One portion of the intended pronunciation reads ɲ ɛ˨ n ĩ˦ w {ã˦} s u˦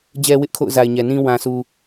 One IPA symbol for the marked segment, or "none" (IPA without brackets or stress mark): ã˦